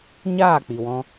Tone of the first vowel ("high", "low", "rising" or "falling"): falling